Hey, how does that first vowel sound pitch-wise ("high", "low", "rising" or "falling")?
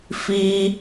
high